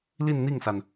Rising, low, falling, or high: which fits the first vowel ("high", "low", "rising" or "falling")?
falling